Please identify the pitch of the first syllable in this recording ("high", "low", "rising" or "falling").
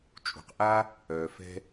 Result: low